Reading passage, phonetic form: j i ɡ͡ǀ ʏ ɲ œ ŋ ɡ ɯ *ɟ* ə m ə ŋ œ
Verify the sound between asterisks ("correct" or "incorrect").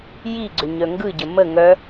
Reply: correct